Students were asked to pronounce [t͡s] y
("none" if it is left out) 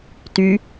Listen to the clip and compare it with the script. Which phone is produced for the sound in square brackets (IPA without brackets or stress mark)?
t